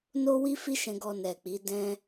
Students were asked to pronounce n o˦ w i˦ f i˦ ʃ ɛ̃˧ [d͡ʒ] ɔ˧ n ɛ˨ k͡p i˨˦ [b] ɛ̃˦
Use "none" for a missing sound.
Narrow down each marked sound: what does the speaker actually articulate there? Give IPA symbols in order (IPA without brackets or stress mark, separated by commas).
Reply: ɡ, d